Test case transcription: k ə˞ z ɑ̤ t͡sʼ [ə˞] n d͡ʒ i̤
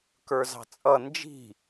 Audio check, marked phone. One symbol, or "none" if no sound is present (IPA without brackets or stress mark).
ʌ